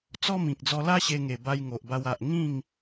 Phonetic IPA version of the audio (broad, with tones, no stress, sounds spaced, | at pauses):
t͡s ɔ˦ m ĩ˨ k̚ d͡z ɔ˧ l a˦ ɕ e˧ ŋ e˨˩ b a˦ j ŋ o˨ ʔ b a˧ w a˨ ʔ ŋ ĩ˥˧ ŋ